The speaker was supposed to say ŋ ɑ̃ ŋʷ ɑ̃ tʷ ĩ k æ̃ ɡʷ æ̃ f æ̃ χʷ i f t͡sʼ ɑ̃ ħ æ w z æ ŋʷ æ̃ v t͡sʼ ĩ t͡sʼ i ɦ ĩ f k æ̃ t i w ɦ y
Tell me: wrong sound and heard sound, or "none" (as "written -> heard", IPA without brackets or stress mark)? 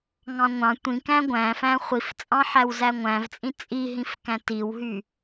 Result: none